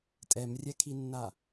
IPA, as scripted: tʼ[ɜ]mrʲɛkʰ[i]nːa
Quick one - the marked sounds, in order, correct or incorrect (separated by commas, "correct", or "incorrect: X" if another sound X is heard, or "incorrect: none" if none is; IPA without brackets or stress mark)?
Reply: incorrect: ɛ, correct